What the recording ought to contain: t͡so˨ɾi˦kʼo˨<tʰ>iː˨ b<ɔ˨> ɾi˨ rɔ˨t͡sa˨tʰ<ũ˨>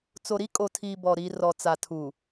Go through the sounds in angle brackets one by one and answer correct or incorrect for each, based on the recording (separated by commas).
correct, correct, incorrect